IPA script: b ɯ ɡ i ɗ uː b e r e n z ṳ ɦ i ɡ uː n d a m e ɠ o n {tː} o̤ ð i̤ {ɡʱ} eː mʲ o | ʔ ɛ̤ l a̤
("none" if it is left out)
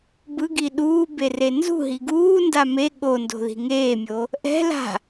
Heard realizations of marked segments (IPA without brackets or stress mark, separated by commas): d, ŋ